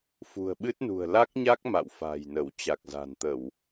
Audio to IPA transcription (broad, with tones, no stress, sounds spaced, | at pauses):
f ṳ˨˩ ə̯ ɓ ɨ˦˥ t̚ n ṳ˨˩ ə̯ l a˦˥ k̚ ɲ a˦˥ k̚ m a̰˧˨ w f a̤ː˨˩ j n ə˧˩ w t͡ɕ a˨˩ k̚ z a̤˨˩ n t̪ ə˧˩˨ w